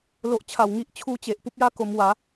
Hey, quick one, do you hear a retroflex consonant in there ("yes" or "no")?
no